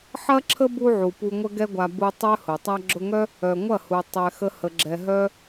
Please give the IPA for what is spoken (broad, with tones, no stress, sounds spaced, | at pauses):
ħ ɐ˦ ǁʰ ə˦ b u˧ ʕ u˨ p u˧ ŋʷ ə˦ ɡ ɛ˦ ɡʷ a˧ b u˧ tˤ œ˦ h ʊ˨ tˤ a˧ ɡ͡ǁ ʊ˧ ŋ œ˦ | œ˨ ŋʷ ɐ˦˨ h u˨ tˤ ɛ˨ x ə˦ h ə˧ ɡ͡ǁ ɛ˧ ɦ œ˦